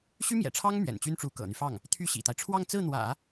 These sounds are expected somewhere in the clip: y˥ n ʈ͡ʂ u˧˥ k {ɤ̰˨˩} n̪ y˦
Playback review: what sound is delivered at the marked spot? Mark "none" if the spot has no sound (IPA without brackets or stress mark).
ɤ̰˨˩